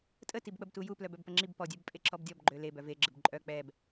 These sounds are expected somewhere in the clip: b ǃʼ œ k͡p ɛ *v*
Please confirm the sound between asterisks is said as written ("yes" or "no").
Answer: no